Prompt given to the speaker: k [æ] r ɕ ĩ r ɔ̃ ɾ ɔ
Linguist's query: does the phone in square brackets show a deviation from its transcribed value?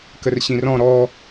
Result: yes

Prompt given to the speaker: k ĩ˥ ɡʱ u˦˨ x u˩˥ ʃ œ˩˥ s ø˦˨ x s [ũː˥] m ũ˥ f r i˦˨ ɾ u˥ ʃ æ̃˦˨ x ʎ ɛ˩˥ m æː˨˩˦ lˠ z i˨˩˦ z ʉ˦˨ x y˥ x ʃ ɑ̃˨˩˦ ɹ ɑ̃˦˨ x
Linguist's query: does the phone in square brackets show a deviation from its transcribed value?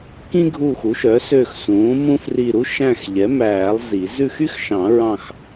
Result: yes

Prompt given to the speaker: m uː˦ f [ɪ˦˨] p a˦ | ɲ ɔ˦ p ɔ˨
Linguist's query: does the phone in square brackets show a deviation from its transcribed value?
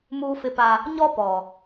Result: yes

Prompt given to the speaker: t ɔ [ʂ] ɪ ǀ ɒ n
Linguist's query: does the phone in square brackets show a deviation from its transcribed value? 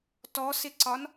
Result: yes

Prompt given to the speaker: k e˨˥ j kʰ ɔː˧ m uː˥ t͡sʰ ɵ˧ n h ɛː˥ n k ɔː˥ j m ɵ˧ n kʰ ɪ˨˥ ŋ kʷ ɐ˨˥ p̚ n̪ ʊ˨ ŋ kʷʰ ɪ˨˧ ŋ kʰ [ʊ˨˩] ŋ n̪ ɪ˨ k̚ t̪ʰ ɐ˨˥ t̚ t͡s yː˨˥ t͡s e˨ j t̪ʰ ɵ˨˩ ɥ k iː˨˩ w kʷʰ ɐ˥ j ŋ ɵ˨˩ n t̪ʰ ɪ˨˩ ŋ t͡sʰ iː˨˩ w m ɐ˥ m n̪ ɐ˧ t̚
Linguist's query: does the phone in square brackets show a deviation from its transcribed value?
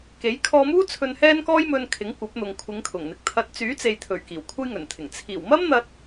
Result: no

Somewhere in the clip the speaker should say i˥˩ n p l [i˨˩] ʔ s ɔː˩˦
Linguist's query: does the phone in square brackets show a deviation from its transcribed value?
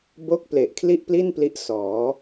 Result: yes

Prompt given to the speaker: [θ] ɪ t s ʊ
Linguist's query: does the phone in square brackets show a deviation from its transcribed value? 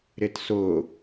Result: yes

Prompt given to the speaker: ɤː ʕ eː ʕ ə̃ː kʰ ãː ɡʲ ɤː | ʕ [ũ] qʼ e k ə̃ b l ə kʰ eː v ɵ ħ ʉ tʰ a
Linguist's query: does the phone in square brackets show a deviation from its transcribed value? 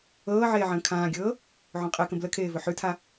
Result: yes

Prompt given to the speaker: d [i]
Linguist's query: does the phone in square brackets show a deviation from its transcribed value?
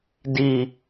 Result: no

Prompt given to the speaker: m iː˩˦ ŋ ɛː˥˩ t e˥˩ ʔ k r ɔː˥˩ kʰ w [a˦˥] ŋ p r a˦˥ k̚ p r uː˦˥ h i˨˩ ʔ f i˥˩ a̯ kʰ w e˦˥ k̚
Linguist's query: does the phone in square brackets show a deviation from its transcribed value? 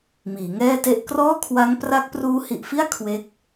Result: no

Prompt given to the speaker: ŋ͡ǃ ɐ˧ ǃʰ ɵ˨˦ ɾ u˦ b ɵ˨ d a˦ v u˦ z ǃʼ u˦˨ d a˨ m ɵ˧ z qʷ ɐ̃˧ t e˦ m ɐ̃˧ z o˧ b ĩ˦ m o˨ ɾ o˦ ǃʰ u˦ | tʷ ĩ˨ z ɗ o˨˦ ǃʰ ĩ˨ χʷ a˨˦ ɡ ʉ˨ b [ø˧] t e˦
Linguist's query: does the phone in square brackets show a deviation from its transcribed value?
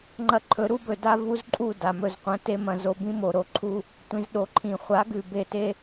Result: yes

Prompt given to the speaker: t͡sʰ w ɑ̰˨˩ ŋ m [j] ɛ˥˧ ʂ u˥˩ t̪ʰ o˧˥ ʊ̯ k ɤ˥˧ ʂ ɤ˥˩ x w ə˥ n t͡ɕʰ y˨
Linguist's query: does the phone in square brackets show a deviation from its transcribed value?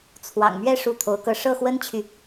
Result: yes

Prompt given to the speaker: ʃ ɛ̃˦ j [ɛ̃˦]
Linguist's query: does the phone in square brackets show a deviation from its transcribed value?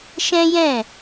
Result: yes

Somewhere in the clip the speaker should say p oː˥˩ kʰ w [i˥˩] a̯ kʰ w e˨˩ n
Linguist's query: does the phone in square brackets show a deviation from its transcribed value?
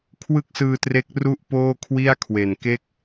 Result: no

